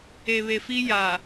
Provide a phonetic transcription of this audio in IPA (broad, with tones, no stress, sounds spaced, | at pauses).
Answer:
e˨ β e˨ f i˦ j aː˨